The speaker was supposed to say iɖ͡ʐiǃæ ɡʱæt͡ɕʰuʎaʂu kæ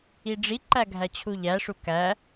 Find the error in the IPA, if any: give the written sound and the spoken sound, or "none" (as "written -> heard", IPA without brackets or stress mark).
a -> æ